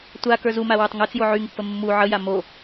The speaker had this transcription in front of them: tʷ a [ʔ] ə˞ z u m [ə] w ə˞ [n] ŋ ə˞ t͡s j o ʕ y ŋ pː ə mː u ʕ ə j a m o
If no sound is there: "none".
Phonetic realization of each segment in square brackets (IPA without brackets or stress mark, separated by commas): k, a, tˤ